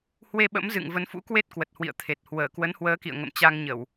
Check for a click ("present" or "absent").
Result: absent